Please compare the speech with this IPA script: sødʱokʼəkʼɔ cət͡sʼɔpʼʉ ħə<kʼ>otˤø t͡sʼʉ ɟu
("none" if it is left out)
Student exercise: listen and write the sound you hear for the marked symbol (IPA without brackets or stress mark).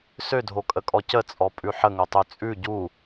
ŋ